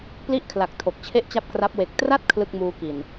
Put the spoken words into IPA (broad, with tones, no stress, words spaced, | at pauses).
pli˥˩ʔkʰla˨˩k̚ tʰo˨˩k̚t͡ɕʰe˥˩ʔt͡ɕa˥˩p̚kra˦˥p̚ we˨˩k̚tra˥˩t̚ kʰlɯ˥˩k̚ muː˧ ki˨˩n